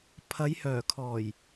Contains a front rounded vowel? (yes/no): yes